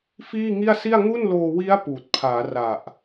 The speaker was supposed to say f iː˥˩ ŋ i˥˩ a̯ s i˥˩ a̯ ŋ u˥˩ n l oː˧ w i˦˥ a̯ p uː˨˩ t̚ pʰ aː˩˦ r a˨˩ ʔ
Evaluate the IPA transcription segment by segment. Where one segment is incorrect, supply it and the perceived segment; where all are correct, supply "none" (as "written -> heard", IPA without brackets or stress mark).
none